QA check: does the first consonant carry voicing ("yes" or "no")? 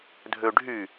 yes